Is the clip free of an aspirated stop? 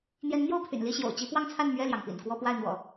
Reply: no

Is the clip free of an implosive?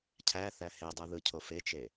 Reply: yes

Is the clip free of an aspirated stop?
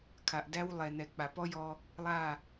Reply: no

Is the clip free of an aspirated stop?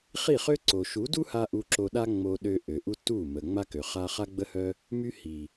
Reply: yes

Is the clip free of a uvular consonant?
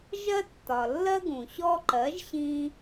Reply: yes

